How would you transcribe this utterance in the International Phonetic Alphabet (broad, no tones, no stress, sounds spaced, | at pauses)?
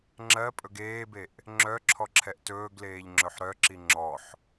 ŋ͡ǁ ɜ pʼ ɵ ɡ eː b e ʔ | ŋ͡ǁ œ ǁʰ ɔ ǁʰ ɛ ʔ t ɵː ɡ l eː ʎ ŋ͡ǁ ɵ ħ ɾ œ ǁ i ŋ͡ǁ ɔ ħ